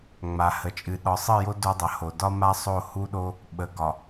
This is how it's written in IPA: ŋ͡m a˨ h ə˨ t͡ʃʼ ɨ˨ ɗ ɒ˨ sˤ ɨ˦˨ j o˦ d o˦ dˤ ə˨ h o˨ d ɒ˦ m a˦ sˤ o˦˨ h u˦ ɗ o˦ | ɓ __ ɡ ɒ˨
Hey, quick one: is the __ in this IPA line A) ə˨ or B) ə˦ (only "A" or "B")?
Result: A